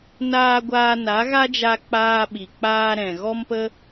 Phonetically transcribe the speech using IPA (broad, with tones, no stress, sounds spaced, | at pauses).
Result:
n aː˧ ɡʷ aː˧ n a˨˦ ɣ a˦ d͡ʒ a˧ k͡p aː˧ ɓ i˨ k͡p aː˧ ɾ ɛ̃˨ ɣ ɔ˦ m p ə˦